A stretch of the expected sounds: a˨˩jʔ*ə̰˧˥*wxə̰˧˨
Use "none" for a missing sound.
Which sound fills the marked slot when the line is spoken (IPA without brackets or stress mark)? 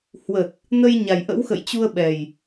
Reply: ə̰˧˥